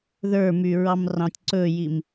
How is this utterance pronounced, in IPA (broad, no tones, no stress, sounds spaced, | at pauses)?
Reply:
ð ə˞ m y ɹ ɑ m r ɑ̃ tʲ ǀ ɵː j i m